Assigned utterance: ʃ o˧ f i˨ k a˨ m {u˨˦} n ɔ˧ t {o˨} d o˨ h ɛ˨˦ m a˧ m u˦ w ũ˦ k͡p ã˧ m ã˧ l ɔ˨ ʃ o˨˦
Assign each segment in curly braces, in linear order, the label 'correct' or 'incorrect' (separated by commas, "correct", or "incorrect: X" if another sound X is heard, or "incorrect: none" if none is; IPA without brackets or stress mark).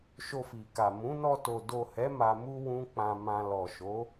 incorrect: ũ˨˦, correct